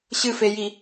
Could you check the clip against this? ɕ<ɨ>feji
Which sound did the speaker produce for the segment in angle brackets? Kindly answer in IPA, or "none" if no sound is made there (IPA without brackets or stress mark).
ɨ